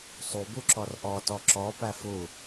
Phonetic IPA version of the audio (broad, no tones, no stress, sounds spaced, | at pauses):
sˤ u b u ǁ ɔ r ʔ ɔ t ɔ ǁ ɔ p æ f u